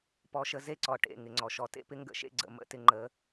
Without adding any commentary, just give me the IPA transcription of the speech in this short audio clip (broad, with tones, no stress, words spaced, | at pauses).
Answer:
pɔ˧ʃə˧ze˦ǀɔ˨ ʈḛ˨ ŋɪ˨ŋ͡ǀɔ˨ʃɔ˨ tḛ˦pɪ˦ŋɡə̰˦˨ʃḛ˦ ɡ͡ǀə̰˨mə̰˦ tɪ˧ŋ͡ǃə˨˦